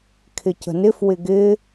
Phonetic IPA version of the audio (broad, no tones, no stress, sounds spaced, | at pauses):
kʰ ɪ c ə̤ n ɪ f w ɪ ɡ ɪ